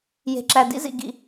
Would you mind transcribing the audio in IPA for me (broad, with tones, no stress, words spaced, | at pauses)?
je̤˨ǁæ˨ dḭ˥zḭ˨ ɡḭ˨